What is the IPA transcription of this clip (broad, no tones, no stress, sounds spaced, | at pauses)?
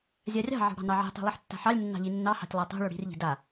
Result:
zʲ a rʲ ɑ̤ ʕ ɑ̤ ɽ ɑ̤ n ɑ ʕ i̤ tˤ i̤ lˠ i ħ tː a̤ ħ ɑ lʲ nː ɑ̤ ʎ i nː ɑ h ɑ̤ tʲ lˠ a tˤ o̤ ɭ o ɽ i̤ r ʎ i̤ d a